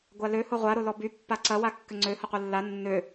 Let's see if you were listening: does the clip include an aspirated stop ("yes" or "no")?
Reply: no